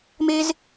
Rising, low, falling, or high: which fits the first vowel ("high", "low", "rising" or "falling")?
high